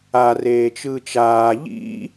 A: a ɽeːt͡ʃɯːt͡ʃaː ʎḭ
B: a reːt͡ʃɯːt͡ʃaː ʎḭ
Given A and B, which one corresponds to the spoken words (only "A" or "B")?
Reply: B